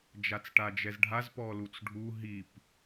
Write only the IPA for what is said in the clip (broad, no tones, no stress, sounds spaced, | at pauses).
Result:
d͡ʒ a t͡s ʈ a d͡ʒ ɛ z ɖʱ a z p ɔ l u t͡s ɖʱ u ɦ i p